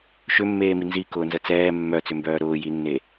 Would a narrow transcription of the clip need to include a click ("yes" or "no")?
no